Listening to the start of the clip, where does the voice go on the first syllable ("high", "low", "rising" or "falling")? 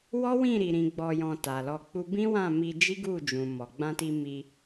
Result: high